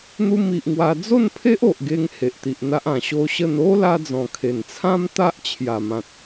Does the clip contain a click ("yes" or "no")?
no